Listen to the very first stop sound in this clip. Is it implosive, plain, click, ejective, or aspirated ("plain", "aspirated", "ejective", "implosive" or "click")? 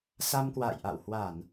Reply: plain